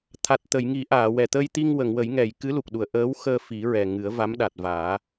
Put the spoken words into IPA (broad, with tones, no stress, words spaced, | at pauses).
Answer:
t̪ʰa˨˩t̚t̪ə˨˩˨jŋi˨˩˦ ʔaː˨˩˨wɛ˨˩ t̪ə˧jt̪i˧ŋ wə˨˩˨ŋwə˨˩˦jŋɛ˨˩˨j kɨ˧˥lu˨˩k̚ɗu˨˩˨ə̯ ʔəː˧˥w xəː˧fi˨˩˦ɹɛ˨˩ ŋɨ˨˩˦ə̯va˧˥m ɗa˨˩t̚vaː˨˩˦